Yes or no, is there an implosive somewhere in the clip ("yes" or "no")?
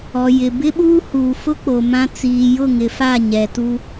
yes